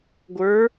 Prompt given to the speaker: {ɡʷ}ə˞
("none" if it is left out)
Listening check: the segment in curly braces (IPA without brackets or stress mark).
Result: ɡʷ